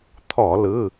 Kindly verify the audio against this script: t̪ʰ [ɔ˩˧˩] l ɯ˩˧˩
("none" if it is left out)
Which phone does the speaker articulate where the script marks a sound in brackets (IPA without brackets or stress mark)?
ɔ˧˩˧